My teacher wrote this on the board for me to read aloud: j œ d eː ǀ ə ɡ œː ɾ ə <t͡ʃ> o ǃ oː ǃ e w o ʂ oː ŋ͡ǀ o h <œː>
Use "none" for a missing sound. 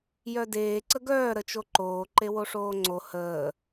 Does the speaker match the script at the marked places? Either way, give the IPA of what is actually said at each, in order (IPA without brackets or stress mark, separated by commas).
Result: t͡ʃ, əː